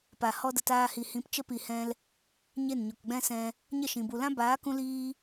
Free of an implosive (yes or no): yes